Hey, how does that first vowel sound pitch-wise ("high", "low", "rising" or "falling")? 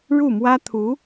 falling